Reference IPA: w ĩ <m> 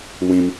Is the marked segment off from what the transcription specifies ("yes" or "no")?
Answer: no